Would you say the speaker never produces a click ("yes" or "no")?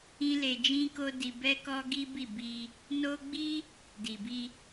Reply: yes